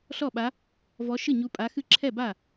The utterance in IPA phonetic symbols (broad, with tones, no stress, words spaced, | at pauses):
ɬɔ˥˩ɓa˧˥ | vɔ˧˥ ʃɨ˥˩ɲu˧˥pʼa˧˥xɨ˥˩ ǁʰɛ˥˩ba˥˩